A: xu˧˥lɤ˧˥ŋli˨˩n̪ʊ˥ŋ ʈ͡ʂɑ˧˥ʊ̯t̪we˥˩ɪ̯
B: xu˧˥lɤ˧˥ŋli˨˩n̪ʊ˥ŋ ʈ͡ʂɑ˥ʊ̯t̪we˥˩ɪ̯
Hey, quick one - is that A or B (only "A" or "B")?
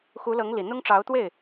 A